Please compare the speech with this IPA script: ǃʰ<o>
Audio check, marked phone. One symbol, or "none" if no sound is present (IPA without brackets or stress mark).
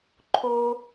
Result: o